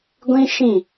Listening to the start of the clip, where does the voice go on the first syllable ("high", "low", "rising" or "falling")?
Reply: high